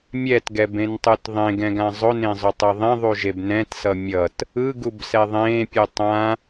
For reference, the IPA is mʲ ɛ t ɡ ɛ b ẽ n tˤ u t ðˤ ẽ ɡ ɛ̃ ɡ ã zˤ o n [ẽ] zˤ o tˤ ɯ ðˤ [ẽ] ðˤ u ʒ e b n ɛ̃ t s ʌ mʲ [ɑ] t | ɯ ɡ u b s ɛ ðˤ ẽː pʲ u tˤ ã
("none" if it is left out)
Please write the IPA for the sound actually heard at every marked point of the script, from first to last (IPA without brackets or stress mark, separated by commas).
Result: ẽ, ẽ, ʌ